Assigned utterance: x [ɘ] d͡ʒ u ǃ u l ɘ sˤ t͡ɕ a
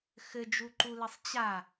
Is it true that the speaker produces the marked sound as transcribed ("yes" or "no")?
yes